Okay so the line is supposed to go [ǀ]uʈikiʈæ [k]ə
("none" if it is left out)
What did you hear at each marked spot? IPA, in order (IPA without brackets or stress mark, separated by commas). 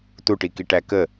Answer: t, k